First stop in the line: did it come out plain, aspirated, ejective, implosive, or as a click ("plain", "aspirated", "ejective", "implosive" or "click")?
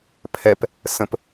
aspirated